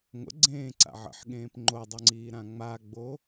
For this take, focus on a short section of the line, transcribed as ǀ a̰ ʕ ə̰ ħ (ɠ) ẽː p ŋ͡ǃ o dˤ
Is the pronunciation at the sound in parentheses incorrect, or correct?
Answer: correct